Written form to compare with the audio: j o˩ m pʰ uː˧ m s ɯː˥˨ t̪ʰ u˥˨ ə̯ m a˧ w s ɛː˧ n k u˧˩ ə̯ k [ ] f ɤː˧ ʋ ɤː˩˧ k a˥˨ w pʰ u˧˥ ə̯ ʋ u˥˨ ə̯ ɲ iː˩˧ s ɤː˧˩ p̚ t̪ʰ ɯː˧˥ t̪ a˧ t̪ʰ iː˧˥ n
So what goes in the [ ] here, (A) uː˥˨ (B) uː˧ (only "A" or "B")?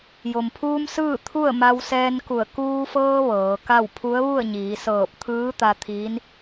B